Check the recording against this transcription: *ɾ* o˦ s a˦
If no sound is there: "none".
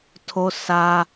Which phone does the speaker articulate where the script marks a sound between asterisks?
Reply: tʰ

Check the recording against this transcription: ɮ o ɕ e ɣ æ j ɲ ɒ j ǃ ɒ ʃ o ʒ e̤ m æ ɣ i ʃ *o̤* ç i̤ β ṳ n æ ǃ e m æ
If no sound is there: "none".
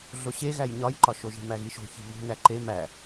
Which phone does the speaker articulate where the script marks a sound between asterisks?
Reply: o̤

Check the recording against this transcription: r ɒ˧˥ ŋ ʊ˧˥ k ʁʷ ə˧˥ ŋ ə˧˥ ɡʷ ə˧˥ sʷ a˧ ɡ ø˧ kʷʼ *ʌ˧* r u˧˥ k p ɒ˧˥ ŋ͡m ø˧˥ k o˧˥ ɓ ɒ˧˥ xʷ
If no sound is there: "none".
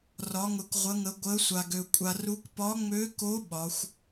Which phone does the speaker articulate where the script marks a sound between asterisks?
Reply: a˧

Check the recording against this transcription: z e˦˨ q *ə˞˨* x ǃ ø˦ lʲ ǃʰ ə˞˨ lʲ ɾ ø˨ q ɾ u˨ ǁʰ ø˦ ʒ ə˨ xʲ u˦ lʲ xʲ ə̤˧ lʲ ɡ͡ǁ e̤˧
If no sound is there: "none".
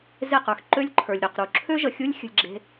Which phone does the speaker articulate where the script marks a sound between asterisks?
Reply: ə˞˨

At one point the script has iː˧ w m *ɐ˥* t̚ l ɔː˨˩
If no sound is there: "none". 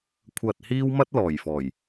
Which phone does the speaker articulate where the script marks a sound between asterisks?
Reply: ɐ˥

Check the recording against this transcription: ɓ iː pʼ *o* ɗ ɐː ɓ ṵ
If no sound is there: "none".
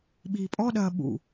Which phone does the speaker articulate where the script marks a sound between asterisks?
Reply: ɔ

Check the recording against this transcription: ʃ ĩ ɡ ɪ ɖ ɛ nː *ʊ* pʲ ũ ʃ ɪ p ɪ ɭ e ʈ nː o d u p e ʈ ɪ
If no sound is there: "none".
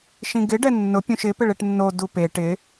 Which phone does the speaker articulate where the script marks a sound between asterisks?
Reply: ʊ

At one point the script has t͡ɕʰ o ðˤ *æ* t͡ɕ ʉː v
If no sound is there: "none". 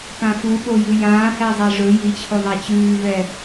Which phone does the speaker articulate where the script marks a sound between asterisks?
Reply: æ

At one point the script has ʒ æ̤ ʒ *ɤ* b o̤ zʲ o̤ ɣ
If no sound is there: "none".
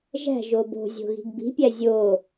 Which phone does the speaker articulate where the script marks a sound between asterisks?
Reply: o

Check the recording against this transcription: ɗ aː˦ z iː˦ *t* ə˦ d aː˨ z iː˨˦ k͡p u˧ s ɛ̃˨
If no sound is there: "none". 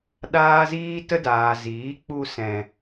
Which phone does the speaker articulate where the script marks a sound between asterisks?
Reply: t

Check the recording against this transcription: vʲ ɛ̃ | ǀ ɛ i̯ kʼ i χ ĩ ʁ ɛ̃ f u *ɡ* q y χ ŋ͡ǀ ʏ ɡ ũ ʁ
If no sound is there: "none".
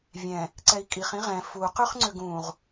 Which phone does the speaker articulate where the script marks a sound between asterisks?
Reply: none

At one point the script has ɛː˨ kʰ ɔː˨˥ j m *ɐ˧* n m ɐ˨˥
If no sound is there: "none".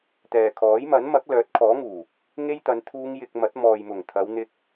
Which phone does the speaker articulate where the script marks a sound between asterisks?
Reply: ɐ˨˥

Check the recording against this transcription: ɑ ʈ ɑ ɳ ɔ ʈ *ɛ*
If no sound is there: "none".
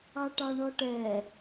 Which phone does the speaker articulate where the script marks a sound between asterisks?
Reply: ɛ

